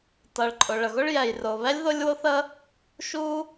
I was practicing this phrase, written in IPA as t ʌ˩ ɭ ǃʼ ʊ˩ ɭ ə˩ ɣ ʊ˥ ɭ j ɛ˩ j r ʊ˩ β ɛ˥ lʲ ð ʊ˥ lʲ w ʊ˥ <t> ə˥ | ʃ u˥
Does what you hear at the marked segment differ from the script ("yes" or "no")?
yes